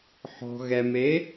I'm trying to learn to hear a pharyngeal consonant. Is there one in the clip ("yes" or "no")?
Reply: yes